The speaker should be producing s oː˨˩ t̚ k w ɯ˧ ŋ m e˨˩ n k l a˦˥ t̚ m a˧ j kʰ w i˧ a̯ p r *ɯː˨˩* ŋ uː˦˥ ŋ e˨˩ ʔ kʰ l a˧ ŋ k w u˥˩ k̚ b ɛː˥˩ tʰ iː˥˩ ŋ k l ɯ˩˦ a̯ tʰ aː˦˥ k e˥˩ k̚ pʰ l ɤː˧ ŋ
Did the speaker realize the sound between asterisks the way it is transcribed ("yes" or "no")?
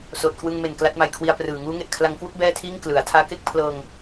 yes